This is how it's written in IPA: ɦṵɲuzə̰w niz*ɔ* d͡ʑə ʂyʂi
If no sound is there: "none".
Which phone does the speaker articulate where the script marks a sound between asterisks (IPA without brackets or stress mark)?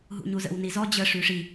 ɔ